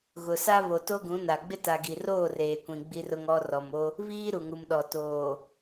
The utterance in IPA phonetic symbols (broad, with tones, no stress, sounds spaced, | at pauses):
ɣ ʊ˨ s a˦ β o˨ t o˦ ɡ ũ˨˦ n a˨ ɡ͡b ɪ˦ t a˨ ɡ i˨ r oː˦˨ r eː˨ kʷ ĩ˨ ɡ͡b i˦ r ʊ˦ ŋ ɔ˦ r ɔ˨ m o˦ | β iː˦ ɾ u˨ ŋ u˨ m ɗ ɔ˨ t oː˨